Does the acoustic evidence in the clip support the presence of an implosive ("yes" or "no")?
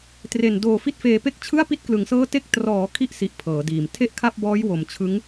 no